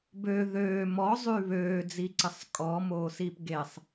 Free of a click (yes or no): no